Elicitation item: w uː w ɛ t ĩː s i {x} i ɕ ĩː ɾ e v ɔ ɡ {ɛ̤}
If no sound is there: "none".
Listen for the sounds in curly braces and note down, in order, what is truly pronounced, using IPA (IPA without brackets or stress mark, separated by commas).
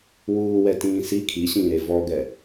kʰ, ɛ